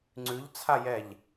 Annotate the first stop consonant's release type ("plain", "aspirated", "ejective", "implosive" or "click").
click